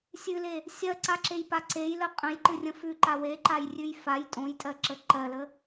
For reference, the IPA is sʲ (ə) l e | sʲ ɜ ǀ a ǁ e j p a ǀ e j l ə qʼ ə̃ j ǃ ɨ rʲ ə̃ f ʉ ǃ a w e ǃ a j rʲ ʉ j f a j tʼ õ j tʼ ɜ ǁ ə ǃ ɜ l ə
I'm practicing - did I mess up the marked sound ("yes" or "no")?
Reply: yes